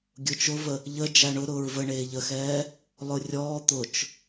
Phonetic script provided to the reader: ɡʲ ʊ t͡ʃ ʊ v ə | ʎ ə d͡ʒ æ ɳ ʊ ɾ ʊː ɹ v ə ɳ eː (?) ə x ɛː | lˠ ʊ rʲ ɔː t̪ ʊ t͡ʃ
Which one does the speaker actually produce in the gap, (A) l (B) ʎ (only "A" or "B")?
B